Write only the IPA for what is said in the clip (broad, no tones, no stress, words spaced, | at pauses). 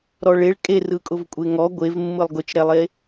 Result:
ɾɔɭeɭ kʼe rɯkʼʊvkʷʼeŋɔ ɡʷevmːɯlˠ ɡʊt͡ʃɾɛlˠe